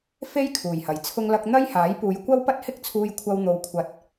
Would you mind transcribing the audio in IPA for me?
f e˥ j kʰ uː˨˩ j h ɐ˨˩ j t͡sʰ ʊ˧ ŋ l ɐ˧ k̚ n̪ ɐ˥ j h aː˨˥ j p uː˨˧ j kʷ ɐ˥ w p ɐ˥ t̚ h ɪ˥ k̚ t͡sʰ uː˧ j kʷʰ ɐ˧ w n̪ o˧ w kʷʰ ɐ˧ t̚

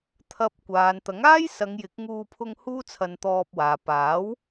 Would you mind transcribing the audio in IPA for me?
t̪ʰ ɐ˨ p̚ kʷ aː˨ n t̪ ɐ˨˥ ŋ aː˥ j s ɐ˨˧ ŋ j ɪ˨˥ k̚ ŋ uː˧ pʰ ʊ˧ ŋ h uː˥ t͡sʰ ɐ˧ n t̪ ɔː˧ p̚ w aː˨ p aː˨˥ w

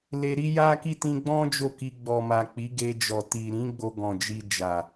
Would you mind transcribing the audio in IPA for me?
l e˧ ɾ i˦ j a˦ k i˦ t ĩ˧ ɡ͡b ɔ̃˦ d͡ʒ o˦˨ k i˧ ɡ͡b ɔ˨ m a˨ k͡p i˨˦ ɡ e˧ d͡ʒ ɔ˨ t i˨ ɾ ĩ˨˦ ɡ͡b o˧ ɡ ɔ̃˨ d͡ʒ i˧ d͡ʒ a˨

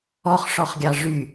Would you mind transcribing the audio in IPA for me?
ɔ χ ʂ ɔ χ ɡʲ ɑ ʐ y

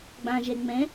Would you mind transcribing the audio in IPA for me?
ɡ͡b ã ʒ ɛ ŋ͡m ɛ̃

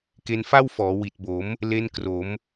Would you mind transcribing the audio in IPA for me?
k e˧ n f a˥˩ w f ɔː˩˦ w i˨˩ t̚ b o˩˦ m | l e˦˥ n k r o˩˦ m

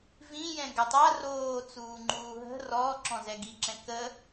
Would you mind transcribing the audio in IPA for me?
v ĩ j ɛ̃ ɡ a tˤ a r oː t͡s uː ŋ͡ǃ uː ɦ ə̤ r ɔː ǁ ɔ̃ z ɛ ɡ i ǁ ɛ̃ k ə

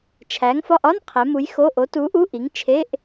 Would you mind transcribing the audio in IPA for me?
t͡ʃʰ æ˨˥ ŋ f ɒ˧˥˧ ʔ ɒ˧˥˧ n qʰ æ˨˥ m u˨˥ j x o˧˥˧ ʔ o˨˥ t u˨˥ ʔ u˧˥˧ ʔ i˨˥ ŋ t͡ʃʰ e˧˥˧ ʔ

